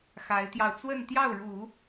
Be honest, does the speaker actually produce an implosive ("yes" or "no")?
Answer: no